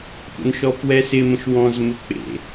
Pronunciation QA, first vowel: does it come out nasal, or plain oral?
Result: oral